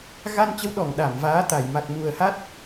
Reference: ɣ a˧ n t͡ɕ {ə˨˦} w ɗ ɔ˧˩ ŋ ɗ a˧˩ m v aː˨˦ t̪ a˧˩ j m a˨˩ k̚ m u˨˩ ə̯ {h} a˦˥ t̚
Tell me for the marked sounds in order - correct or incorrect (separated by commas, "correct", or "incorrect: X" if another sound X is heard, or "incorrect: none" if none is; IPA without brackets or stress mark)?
correct, correct